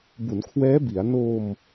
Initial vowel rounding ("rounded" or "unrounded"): rounded